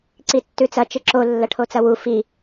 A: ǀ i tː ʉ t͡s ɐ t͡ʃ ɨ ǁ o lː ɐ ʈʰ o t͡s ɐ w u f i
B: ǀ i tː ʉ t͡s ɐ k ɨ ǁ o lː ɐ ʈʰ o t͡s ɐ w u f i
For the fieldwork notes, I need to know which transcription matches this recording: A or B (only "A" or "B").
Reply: A